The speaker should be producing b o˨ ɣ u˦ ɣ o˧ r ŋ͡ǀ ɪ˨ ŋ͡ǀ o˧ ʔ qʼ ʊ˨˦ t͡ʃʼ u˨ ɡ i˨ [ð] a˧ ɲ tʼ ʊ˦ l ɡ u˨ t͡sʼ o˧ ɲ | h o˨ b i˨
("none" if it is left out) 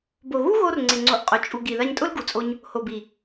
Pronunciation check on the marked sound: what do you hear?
ð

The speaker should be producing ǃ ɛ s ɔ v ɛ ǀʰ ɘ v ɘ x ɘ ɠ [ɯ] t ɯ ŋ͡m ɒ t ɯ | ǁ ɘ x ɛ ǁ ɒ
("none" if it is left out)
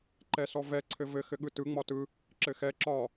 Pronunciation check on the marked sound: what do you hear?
ɯ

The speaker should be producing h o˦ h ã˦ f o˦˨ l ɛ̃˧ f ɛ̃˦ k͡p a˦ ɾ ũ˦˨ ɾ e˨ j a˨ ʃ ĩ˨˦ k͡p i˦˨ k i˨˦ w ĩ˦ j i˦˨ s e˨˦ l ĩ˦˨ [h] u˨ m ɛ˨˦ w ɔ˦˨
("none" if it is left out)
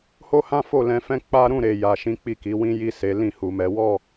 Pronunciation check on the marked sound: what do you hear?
h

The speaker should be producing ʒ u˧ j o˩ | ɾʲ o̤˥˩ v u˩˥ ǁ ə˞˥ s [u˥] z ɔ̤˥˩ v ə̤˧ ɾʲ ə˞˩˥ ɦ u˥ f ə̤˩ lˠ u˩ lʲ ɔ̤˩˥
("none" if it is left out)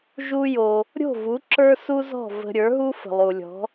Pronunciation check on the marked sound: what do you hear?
u˥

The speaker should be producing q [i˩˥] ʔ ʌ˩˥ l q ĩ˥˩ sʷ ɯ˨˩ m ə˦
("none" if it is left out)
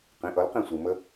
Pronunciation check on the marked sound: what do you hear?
ĩ˩˥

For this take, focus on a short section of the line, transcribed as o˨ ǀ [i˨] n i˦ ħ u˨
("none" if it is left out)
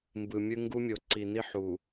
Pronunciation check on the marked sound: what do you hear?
i˨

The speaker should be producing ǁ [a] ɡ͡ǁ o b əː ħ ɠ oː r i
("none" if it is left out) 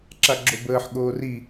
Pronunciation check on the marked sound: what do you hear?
a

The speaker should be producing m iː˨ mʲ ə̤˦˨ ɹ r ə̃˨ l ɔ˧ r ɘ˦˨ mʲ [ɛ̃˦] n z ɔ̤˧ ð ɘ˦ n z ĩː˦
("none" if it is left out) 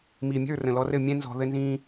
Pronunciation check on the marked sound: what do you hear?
ɛ̃˦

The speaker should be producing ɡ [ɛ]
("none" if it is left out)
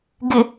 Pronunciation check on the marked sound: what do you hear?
ɪ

